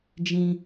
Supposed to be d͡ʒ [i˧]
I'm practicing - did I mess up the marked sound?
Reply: yes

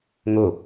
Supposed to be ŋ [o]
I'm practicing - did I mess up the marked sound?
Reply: no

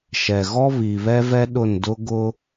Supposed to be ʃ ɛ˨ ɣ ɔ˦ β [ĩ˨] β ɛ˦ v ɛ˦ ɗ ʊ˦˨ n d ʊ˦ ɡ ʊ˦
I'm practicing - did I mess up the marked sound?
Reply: yes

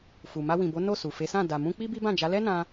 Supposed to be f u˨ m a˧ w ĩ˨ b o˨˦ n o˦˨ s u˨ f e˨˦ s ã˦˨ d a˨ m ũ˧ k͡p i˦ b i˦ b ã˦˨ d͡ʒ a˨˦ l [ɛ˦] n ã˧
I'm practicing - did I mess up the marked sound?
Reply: no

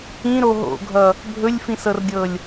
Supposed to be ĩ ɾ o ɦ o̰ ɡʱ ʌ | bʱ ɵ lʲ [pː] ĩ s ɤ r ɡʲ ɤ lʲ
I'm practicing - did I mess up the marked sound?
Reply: yes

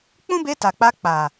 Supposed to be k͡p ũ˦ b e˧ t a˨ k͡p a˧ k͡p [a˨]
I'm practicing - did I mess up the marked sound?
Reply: no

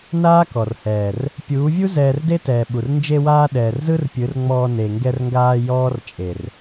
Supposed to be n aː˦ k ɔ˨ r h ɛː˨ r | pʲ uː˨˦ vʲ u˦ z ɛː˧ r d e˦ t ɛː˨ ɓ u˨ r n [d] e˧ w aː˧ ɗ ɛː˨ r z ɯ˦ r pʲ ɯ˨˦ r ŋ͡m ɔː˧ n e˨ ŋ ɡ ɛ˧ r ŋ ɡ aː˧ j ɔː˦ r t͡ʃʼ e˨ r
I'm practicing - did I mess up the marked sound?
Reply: yes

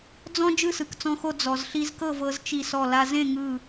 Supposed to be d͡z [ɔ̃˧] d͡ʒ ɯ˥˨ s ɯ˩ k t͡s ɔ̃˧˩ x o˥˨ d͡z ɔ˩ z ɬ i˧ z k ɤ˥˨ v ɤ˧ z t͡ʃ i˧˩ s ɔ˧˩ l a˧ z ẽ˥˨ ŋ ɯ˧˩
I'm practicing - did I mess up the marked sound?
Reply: no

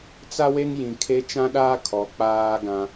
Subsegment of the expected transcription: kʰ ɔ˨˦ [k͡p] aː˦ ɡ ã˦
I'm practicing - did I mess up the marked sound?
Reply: no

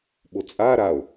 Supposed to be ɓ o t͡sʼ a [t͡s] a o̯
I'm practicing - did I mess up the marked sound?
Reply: yes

